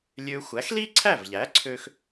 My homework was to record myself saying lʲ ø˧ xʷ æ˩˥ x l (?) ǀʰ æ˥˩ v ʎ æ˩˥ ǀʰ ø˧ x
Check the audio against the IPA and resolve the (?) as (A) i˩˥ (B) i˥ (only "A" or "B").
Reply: B